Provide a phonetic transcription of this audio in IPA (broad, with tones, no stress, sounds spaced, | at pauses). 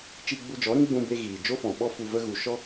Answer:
t͡ʃ iː˧ ɡ͡b u˧ d͡ʒ ɔ˨˦ ɾ ĩ˦ ɡ͡b ũ˧ b e˧ ɣ iː˨ d͡ʒ o˦ f ɔ̃˨ ɓ ɔ˦ f u˧ v ə˦ ɣ u˧ ʃ ɔ˦